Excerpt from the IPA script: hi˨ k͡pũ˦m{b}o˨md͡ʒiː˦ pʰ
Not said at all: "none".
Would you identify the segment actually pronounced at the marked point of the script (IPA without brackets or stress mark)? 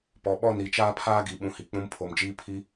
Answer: pʰ